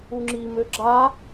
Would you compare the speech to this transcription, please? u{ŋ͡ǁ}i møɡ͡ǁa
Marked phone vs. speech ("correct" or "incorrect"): correct